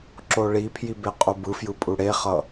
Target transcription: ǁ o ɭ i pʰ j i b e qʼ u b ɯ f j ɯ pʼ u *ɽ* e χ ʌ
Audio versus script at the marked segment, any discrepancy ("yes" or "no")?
no